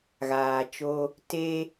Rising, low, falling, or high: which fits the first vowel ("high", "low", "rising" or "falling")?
low